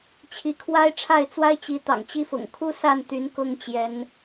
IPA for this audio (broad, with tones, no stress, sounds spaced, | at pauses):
t͡ɕʰ i˧˥ kʰ w a˥ ɪ̯ ʈ͡ʂʰ a˥˩ ɪ̯ t͡s w a˥ ɪ̯ t͡ɕ i˧˥ t̪ ɑ̰˨˩ ŋ t͡ɕ i˥˩ f ʊ̰˨˩ ŋ kʰ u˥ s a˥˩ n t̪ y˧˥ n k ʊ˥ ŋ t͡ɕ j ɛ˧˥ n